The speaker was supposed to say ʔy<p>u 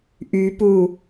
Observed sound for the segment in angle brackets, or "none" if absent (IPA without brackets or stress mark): p